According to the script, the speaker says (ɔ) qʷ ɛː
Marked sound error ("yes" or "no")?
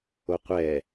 yes